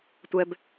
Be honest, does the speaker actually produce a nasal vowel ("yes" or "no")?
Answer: no